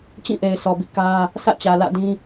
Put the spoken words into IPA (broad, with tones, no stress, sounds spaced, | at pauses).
t͡ɕ ĩ˦˨ ʔ e˨ ɪ̯ sʰ ɔ˨ b ḭ˦˨ k ä˦ | sʰ ä̰˦˨ t͡ɕ ä˨ l ä̰˦˨ d ĩ˦